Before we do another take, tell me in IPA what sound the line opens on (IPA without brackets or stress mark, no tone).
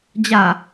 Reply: d͡ʑ